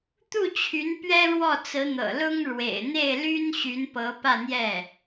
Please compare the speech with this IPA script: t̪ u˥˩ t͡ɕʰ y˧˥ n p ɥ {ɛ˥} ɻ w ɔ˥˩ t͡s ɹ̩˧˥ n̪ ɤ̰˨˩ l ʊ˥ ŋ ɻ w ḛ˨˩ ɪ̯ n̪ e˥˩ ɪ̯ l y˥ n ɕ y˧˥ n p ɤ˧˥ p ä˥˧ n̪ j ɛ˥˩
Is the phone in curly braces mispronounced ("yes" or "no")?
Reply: no